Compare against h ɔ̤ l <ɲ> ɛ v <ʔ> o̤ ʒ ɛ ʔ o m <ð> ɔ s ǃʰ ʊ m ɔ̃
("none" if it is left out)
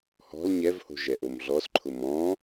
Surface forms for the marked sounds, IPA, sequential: ɲ, h, ɮ

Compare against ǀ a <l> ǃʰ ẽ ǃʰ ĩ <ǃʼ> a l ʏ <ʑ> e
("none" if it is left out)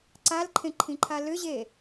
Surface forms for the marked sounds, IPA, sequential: l, ǃʰ, ʑ

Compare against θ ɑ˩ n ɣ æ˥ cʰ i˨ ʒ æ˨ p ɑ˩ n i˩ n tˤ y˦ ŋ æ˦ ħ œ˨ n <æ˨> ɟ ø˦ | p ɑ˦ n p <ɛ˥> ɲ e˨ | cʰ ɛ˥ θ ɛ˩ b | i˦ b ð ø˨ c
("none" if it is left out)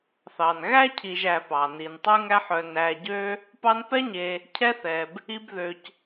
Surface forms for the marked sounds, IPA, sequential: æ˨, ɛ˥

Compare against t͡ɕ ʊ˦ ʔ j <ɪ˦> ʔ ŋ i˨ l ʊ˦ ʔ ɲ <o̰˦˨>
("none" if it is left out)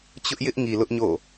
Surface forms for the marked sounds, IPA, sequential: ɪ˦, o̰˦˨

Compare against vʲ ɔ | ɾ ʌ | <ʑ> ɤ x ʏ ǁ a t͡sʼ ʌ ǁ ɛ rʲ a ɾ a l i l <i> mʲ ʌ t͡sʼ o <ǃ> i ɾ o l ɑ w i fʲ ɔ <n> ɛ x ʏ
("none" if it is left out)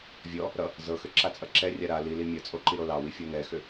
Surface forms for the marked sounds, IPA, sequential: z, i, ǃ, n

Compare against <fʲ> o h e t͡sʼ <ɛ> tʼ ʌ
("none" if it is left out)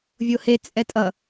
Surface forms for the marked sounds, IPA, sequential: vʲ, ɛ

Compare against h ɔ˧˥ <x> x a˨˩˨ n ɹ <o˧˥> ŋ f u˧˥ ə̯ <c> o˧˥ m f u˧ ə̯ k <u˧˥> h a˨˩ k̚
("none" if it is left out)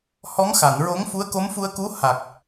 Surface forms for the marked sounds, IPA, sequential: ŋ, o˧˥, k, u˧˥

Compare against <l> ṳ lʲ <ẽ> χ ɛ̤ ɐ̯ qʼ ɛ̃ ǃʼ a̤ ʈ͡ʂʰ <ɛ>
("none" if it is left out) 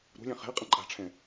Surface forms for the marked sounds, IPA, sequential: ɾ, ɛ̃, ɛ̃

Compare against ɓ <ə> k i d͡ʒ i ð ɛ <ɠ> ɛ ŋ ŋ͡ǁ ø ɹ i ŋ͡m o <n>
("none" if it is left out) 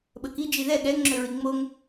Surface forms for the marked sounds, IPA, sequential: ə, ɠ, ŋ

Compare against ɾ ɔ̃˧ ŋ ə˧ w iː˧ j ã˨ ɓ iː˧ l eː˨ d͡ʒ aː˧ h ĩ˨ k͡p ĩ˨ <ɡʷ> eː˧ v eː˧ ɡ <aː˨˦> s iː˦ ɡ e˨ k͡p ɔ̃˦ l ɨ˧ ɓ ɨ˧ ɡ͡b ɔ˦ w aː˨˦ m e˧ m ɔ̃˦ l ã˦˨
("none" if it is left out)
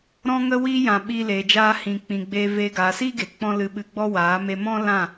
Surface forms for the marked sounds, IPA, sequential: ɡ͡b, aː˨

